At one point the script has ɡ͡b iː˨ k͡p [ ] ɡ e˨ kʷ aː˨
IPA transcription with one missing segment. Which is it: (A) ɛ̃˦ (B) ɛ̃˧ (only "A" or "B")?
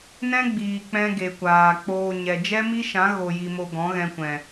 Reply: A